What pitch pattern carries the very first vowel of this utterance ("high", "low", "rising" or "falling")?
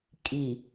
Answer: low